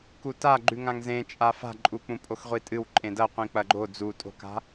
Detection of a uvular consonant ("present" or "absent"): present